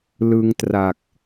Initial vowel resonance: oral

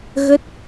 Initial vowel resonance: oral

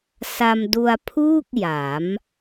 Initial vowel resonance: oral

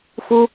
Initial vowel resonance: oral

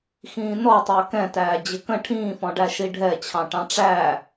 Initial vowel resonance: nasal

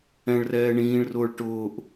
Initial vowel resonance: nasal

